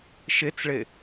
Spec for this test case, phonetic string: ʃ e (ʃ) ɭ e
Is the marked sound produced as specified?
no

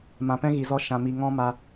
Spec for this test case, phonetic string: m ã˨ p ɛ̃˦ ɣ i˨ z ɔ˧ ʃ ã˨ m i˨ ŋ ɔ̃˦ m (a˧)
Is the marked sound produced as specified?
yes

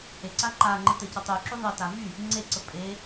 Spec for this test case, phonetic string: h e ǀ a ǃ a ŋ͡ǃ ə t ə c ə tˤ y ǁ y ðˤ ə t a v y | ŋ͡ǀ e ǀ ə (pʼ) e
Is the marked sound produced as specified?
yes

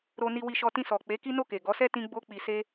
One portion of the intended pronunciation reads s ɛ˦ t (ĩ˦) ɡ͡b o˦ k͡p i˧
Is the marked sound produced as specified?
yes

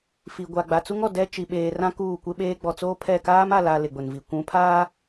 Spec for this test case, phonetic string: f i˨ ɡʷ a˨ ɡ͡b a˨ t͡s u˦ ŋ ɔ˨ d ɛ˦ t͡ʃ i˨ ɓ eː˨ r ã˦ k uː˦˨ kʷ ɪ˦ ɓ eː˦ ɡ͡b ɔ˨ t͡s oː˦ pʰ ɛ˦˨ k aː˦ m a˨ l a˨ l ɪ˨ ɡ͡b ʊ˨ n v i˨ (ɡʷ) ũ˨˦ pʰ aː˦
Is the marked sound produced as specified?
no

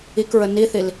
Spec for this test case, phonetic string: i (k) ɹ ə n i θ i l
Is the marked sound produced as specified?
yes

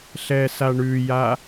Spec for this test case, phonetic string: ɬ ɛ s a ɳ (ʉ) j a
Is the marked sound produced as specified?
yes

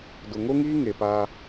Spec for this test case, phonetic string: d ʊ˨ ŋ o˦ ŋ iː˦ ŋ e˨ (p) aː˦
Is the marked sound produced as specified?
yes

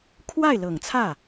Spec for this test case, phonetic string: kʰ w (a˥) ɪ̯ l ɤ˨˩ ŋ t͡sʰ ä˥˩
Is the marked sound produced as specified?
no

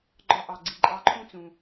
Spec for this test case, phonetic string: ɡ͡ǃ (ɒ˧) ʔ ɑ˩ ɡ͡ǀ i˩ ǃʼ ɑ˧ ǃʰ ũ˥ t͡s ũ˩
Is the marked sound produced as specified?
yes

